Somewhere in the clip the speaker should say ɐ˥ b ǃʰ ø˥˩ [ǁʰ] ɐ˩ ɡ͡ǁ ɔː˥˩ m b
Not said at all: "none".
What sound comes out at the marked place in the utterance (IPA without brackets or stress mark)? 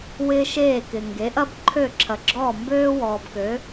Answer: ǁʰ